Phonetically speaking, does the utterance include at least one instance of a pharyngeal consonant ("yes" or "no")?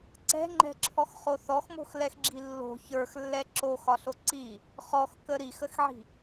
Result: yes